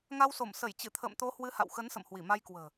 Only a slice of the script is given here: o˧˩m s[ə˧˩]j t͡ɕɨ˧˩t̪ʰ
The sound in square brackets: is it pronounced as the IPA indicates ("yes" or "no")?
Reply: yes